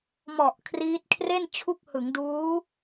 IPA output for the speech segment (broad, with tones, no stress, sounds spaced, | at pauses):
m ɔ˨˩ ʔ kʰ r iː˦˥ t̚ kʰ r e˥˩ n t͡ɕʰ u˦˥ k̚ h ɯ˩˦ ŋ d uː˦˥